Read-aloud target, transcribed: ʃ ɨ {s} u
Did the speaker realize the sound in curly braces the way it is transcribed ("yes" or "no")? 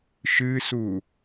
yes